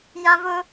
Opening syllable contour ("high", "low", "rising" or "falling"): high